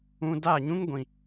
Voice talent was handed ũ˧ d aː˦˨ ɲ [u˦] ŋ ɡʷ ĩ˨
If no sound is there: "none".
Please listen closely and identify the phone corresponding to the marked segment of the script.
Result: ũ˦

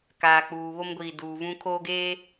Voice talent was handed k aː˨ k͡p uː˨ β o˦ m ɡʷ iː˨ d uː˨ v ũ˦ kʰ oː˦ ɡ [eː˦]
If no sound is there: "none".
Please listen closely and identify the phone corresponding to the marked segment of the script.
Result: eː˦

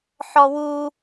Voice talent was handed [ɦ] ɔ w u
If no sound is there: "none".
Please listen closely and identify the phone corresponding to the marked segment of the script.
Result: ħ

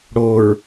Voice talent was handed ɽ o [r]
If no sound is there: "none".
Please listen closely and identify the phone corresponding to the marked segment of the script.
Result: ɹ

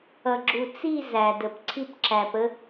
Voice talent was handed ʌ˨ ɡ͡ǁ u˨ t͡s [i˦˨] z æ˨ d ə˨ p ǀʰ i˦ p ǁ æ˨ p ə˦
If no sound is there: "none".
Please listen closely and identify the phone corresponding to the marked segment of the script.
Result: i˦˨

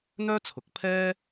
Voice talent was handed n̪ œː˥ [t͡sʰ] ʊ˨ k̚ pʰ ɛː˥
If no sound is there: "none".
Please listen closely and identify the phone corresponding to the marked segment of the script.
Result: t͡sʰ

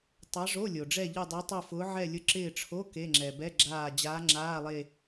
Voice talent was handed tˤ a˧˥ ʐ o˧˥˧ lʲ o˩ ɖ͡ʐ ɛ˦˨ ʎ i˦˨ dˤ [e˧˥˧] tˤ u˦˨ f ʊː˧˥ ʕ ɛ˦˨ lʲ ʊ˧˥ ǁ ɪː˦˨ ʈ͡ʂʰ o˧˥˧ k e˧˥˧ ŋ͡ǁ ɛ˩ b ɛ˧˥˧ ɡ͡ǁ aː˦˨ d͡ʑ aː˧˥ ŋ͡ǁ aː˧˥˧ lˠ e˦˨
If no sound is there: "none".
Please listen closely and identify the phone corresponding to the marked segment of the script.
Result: e˧˥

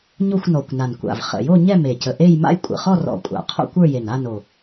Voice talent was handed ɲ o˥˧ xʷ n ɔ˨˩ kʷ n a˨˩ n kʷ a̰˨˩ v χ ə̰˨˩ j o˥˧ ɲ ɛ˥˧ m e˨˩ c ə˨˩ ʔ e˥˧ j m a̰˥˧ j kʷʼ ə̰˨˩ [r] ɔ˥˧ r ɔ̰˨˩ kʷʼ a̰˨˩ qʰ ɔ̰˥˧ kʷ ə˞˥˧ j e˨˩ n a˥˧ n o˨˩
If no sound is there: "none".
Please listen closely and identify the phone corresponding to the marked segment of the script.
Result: χ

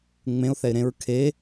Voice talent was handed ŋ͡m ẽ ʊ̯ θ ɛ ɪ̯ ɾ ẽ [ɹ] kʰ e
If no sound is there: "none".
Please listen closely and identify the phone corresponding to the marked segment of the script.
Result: ɹ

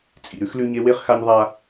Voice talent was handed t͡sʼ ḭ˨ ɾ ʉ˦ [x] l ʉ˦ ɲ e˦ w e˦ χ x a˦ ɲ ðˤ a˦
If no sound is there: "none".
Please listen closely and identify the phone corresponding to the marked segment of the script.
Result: x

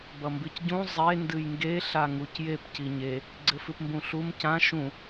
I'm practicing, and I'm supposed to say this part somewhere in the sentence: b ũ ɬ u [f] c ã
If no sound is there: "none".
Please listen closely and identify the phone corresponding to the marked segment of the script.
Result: m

